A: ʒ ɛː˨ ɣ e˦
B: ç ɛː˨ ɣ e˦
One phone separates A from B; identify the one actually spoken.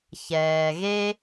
B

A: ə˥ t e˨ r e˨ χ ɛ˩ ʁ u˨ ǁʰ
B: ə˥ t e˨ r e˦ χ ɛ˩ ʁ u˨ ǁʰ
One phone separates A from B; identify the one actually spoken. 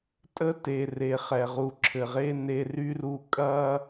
A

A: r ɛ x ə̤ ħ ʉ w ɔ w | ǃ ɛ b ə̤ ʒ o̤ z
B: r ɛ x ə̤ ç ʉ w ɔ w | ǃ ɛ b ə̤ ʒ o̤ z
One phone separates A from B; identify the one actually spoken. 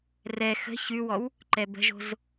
B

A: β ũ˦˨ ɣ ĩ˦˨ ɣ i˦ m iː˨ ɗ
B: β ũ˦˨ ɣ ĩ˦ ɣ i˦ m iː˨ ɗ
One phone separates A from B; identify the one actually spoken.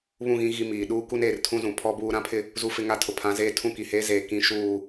B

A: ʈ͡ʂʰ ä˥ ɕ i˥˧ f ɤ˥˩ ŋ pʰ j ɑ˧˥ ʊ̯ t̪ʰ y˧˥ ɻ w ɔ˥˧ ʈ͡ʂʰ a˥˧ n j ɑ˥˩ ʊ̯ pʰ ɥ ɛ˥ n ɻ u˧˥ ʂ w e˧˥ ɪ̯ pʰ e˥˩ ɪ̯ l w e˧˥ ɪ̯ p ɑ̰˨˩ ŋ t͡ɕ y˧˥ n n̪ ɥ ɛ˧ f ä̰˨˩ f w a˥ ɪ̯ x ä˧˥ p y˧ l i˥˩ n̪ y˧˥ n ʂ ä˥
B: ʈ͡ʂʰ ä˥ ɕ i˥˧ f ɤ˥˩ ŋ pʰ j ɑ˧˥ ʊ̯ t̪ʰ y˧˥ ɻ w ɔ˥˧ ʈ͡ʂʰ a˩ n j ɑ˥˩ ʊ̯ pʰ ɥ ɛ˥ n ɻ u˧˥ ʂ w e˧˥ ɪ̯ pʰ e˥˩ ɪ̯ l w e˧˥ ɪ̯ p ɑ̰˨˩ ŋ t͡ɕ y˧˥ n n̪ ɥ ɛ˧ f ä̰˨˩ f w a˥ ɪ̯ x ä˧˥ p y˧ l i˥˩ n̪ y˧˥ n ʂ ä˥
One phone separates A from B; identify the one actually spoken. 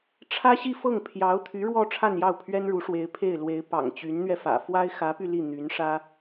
A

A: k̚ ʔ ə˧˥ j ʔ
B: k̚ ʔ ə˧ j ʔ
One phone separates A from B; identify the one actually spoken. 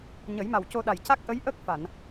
A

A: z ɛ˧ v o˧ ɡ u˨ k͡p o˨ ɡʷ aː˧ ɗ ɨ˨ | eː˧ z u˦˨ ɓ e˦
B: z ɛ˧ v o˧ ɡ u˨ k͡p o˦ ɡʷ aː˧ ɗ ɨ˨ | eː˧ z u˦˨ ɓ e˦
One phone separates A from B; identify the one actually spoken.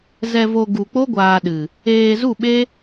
B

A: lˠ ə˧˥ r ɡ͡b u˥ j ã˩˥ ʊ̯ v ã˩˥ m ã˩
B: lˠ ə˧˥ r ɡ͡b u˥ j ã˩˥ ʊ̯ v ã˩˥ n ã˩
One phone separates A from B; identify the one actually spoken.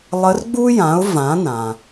B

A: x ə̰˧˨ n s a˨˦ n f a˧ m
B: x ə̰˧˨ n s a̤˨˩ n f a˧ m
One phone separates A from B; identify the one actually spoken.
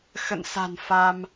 B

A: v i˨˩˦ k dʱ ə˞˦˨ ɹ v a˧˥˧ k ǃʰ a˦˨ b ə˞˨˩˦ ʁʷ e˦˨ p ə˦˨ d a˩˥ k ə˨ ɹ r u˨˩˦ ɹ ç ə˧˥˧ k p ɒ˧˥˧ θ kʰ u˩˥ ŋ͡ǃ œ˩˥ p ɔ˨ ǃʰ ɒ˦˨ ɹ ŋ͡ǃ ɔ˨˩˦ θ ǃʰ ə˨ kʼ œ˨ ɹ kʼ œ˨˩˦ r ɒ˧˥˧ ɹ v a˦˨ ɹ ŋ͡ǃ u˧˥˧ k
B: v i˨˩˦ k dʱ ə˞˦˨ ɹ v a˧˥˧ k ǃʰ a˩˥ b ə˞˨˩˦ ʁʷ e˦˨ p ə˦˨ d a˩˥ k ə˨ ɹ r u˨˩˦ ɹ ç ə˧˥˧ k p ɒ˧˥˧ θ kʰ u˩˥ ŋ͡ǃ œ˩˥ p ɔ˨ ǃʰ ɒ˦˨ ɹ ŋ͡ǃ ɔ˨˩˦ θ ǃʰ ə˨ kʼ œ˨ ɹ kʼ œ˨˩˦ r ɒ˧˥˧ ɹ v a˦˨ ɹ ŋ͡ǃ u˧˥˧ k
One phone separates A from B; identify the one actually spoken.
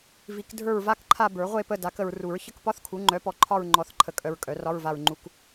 A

